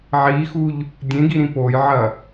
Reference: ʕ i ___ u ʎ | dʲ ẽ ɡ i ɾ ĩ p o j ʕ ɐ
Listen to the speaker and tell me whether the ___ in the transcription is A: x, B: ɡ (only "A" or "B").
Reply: A